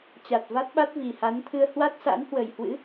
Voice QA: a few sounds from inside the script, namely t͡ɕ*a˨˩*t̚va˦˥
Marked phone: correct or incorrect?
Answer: correct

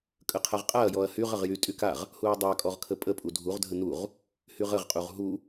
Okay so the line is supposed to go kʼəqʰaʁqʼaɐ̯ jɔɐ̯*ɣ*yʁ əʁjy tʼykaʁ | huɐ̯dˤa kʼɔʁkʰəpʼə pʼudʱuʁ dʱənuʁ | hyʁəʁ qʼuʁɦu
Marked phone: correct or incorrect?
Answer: incorrect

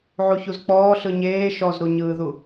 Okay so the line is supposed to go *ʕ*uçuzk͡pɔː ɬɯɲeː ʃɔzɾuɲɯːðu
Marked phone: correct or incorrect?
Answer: correct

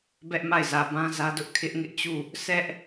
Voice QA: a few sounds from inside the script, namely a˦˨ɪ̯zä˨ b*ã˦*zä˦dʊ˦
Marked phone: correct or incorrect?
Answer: correct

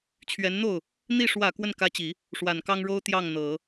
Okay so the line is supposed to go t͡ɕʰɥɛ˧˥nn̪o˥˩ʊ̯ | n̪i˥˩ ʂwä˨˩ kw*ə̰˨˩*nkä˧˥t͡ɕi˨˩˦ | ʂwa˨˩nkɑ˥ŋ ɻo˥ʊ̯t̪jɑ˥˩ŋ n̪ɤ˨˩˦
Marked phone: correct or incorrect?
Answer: incorrect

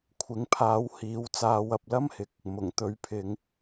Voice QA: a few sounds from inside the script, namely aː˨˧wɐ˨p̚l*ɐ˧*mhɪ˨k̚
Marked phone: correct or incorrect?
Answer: incorrect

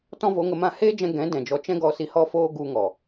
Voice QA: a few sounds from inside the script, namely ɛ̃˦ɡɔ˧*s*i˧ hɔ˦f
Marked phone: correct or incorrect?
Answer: correct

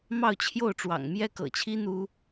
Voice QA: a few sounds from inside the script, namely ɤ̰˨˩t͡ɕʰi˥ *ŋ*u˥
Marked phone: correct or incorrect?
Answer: incorrect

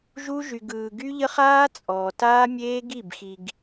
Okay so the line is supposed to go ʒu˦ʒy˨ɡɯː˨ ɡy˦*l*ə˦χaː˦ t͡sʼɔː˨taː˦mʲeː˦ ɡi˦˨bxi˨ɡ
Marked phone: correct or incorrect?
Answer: incorrect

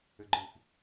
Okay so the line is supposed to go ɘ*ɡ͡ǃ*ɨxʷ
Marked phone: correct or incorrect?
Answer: correct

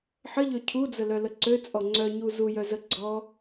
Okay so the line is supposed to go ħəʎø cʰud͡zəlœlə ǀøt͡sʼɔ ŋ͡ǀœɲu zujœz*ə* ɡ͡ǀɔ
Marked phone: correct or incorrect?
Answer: correct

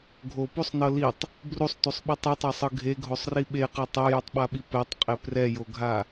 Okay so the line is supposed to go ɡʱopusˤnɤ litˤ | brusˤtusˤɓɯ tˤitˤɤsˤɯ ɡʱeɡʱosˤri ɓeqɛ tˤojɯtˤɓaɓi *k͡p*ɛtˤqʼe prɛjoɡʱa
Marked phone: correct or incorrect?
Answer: incorrect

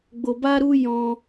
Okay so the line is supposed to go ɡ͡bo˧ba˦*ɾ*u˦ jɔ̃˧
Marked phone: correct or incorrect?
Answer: correct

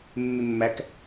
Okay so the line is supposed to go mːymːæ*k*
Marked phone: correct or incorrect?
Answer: correct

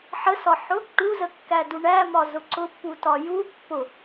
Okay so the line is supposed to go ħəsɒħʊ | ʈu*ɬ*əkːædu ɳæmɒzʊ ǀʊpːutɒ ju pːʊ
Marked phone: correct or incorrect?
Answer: incorrect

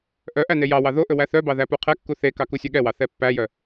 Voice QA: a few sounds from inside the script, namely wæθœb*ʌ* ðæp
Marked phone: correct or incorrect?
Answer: incorrect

